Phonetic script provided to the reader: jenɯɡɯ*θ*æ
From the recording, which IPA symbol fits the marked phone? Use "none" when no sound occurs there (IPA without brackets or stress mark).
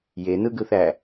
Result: θ